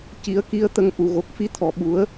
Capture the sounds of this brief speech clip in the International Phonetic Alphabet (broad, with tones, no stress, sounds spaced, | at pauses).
c i˨˩˦ ə̯ k i˧˥ ə̯ t̪ ə˧ ŋ ʔ u˨˩ ɣ o˨˩ k̚ f i˧ t̪ʰ ɔ˨˩ ɓ u˨˩˦ ə̯